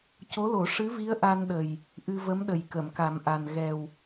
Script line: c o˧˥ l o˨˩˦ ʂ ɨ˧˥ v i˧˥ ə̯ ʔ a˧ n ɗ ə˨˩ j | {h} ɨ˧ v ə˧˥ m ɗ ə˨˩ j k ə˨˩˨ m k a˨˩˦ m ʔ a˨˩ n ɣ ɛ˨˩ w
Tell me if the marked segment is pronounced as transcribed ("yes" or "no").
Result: no